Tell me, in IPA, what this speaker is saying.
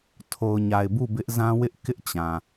tʰ o˨ ʊ̯ ɲ a˨ ɪ̯ b u˦˨ b ɪ˦ ʔ z ã˦ w ɪ˦ ʔ k ɪ˦ ʔ t͡ɕ ã˨

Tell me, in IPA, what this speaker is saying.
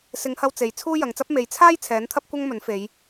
s ɪ˨˧ ŋ h ɐ˧ w t͡s e˨˧ j t͡sʰ uː˥ j ɐ˨˧ ŋ t͡s ɐ˥ p̚ m e˨˧ j t͡sʰ aː˥ j t͡sʰ ɛː˨˥ n t̪ʰ ɐ˥ p̚ kʷ ɐ˥ ŋ m ɵ˨˥ n f e˨˧ j

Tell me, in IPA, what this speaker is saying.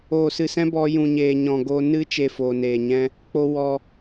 oː˨ s ɨ˨ s ɛ̃˦ b ɔ˧ j ũ˨ ɲ eː˨ ɲ ɔ̃˨ ɡ o˧ n ɨ˦ t͡ʃ e˧ f oː˨ n eː˨ ɲ ɛ̃˦ | k͡p o˧ w ɔ˧

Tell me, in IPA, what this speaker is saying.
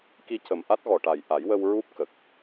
k i˧ c ə˨˩ m ʔ a˦˥ t̚ ɣ ɔ˨˩ ʈ a˨˩ j ʔ a˨˩˦ j w ə˧ w ɹ u˦˥ p̚ k ə˨˩ k̚

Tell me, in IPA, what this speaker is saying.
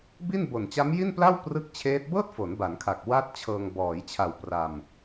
b i˥˩ n b o˨˩ n t͡ɕ a˦˥ m j i˥˩ n p l a˥˩ w p r ɯ˥˩ k̚ t͡ɕʰ eː˦˥ t̚ b ɤː˥˩ t̚ f o˩˦ n b a˩˦ n kʰ a˨˩ k̚ w a˥˩ t̚ t͡ɕʰ ɤː˧ ŋ b ɔː˩˦ j t͡ɕʰ a˨˩ w p r a˧ m

